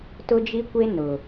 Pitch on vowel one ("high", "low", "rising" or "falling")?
high